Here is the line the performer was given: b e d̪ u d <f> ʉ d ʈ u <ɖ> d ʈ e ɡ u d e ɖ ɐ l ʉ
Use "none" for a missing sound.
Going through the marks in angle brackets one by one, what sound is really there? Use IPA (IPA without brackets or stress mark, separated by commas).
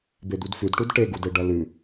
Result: f, none